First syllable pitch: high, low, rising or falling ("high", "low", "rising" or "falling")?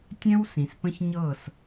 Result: high